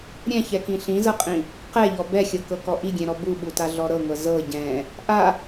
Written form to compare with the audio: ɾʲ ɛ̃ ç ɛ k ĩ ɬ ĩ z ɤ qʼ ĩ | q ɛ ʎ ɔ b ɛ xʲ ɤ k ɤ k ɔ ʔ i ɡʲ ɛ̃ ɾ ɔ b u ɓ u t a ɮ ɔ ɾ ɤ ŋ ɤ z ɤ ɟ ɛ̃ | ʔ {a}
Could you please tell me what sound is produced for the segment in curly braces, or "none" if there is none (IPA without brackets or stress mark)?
a